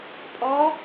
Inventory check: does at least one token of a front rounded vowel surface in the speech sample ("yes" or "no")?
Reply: no